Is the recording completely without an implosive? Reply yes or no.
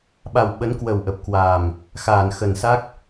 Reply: no